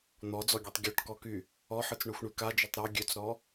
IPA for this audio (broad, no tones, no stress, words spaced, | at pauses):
n̪ɔd͡zɔɡʲøtˤ ɡʲɔʈkɔky | ɔħɯt͡sɳøxʷɳy kad͡ʒøtˤ ɾɔ ɡʲøt͡sɾɔ